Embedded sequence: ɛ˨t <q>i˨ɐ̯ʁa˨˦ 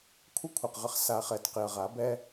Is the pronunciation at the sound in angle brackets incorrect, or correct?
correct